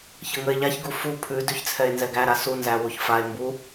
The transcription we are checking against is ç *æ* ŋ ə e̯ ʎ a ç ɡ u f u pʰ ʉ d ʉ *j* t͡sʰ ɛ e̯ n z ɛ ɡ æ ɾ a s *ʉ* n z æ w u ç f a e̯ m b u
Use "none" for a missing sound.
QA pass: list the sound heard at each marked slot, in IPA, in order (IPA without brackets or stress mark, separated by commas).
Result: ə, ç, u